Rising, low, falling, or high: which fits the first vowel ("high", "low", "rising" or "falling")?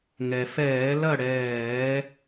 low